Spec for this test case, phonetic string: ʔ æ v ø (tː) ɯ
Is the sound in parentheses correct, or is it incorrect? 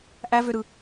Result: incorrect